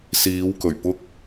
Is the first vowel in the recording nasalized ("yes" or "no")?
no